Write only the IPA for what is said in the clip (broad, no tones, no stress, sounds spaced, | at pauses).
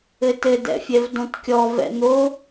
ɘ t ɘ d ɛ̰ fʲ ɛ v d õ t kʲ ɔ v ɛ̰ n̪ o